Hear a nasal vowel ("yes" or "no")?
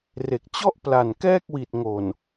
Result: no